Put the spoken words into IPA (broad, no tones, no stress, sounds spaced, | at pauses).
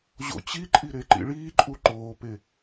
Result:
ʑ o̰ t͡ɕ i ǃʼ i ɾ e ǃ ḭ ɭ iː ǃʼ u ǃ oː p e